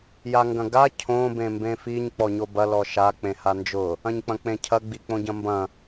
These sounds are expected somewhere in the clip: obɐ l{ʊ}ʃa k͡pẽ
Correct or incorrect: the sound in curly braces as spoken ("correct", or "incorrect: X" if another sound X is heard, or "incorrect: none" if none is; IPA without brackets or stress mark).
incorrect: ɔ